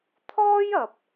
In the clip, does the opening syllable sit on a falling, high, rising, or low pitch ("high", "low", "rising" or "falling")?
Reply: high